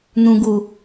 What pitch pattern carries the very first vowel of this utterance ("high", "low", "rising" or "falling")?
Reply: low